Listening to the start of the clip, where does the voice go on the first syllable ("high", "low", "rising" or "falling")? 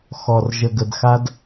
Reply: low